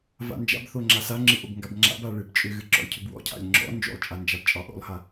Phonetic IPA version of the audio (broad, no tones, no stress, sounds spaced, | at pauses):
v a̰ n d͡ʒ a̰ b θ o ŋ͡ǁ a s a ŋ͡ǁ ɨ ʔ o b ŋ ɡ a b ŋ͡ǁ a̰ b a ɭ ɨ b t͡ʃʼ ʏ ɣ ɨ ǁ ɔ̰ lʲ cʰ ʏ b w ɔ̰ cʰ a̰ lʲ ŋ͡ǁ ɔ̰ n d͡ʒ o̰ lˠ t͡ʃʼ a n d͡ʒ a b t͡ʃʼ ɒ ʔ o̰ lˠ h a